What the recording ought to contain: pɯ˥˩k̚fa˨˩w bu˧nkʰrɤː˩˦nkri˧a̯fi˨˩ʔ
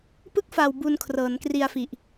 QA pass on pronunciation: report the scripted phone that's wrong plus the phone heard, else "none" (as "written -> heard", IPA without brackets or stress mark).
none